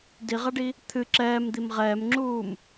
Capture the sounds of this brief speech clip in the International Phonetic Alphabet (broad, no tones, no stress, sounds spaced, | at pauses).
d i ʁ a ɖ i | t̪ʰ ɨ ǁ ɛː m d̪ i m ʁ ɛː m ŋ͡ǁ uː m